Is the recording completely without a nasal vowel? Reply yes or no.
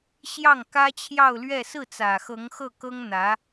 yes